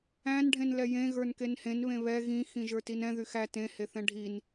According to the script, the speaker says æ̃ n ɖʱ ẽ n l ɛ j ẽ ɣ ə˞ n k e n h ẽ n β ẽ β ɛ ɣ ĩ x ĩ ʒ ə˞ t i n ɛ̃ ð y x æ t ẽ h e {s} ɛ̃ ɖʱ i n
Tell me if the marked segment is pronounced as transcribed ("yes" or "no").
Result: no